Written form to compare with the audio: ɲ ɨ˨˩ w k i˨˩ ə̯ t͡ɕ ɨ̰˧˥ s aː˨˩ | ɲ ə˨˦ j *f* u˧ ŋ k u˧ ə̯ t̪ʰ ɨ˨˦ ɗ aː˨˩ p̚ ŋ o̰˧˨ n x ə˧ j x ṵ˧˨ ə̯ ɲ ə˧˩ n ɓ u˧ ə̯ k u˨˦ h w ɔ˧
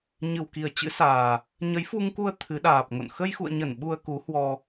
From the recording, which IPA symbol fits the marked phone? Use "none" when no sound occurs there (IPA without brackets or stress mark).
f